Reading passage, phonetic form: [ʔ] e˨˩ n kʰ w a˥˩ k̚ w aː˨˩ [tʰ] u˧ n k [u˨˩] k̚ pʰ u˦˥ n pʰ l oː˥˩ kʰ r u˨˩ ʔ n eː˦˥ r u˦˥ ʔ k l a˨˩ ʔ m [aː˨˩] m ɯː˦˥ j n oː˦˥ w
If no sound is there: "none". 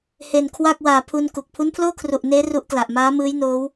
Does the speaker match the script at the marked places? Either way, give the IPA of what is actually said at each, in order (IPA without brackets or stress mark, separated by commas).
h, pʰ, u˨˩, aː˦˥